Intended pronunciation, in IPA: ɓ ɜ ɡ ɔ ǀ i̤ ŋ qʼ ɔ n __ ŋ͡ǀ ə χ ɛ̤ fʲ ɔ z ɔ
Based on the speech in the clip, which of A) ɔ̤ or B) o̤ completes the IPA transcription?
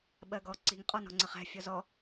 A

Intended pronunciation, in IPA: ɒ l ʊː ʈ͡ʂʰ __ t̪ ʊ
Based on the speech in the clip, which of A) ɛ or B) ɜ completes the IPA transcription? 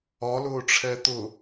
A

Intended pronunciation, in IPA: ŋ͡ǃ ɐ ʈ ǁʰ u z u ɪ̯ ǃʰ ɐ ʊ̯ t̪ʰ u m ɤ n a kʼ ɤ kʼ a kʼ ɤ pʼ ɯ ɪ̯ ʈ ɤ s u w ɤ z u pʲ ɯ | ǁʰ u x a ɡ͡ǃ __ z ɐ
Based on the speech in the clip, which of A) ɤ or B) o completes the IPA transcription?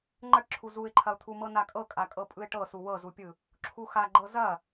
A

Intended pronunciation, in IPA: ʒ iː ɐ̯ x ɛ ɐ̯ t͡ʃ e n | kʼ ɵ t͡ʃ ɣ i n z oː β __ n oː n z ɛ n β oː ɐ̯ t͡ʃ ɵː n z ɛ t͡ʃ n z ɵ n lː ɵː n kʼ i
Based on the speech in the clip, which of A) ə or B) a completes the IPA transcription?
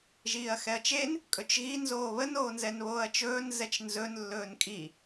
A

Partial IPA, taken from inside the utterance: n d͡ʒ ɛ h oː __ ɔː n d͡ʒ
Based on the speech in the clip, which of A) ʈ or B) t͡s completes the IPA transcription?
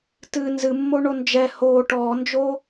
A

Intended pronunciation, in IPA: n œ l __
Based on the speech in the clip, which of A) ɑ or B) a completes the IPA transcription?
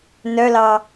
A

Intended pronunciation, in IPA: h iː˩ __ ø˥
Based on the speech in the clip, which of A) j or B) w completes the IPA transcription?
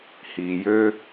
A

